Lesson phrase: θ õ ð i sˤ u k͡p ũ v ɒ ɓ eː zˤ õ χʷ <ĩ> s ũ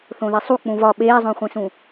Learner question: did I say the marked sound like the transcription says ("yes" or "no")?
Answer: no